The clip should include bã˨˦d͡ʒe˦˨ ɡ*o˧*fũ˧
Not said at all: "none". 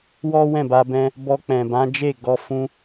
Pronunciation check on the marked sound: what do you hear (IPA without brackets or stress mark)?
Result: ɔ˧